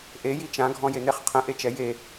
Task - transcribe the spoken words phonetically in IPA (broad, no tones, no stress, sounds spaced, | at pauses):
ʔ e j i t͡ʃ ã ɡʱ ɔ̃ j e n̪ e χ qʰ ə̃ ʔ e t͡ʃ ɛ j e